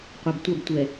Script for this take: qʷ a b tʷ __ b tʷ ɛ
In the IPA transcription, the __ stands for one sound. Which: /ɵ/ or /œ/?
œ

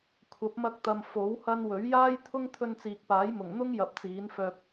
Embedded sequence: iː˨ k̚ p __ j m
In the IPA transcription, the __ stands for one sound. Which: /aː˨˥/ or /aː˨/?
aː˨˥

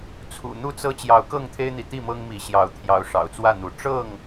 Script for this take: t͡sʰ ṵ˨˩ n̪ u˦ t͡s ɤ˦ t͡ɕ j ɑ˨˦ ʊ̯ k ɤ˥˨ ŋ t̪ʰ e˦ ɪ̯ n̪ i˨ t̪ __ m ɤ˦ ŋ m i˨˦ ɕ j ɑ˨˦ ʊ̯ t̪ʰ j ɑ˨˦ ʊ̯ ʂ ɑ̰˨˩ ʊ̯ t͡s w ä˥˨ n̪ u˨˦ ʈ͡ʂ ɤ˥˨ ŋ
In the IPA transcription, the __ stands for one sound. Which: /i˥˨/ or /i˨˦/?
i˥˨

